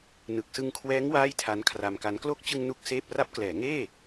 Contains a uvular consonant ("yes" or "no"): no